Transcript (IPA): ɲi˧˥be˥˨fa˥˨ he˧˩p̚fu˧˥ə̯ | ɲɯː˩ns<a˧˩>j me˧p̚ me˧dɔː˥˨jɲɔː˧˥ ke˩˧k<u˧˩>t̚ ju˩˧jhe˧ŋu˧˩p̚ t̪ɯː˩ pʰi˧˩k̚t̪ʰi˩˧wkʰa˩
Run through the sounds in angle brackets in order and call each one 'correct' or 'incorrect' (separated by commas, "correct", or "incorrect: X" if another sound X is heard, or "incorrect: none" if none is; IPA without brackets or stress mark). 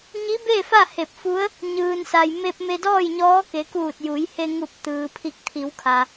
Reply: incorrect: a˩, incorrect: uː˧˩